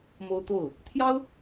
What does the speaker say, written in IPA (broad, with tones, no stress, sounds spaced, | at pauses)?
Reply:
m o˥ ʊ̯ t̪ o˥˩ ʊ̯ | t̪ʰ j ɑ˥ ʊ̯